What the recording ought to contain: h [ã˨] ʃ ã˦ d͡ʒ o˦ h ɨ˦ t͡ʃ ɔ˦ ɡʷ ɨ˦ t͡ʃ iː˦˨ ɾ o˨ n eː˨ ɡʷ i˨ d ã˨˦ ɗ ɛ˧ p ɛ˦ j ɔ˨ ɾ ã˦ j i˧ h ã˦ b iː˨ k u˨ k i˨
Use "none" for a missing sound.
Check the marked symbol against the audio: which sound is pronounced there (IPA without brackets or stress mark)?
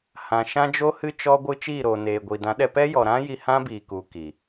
ã˨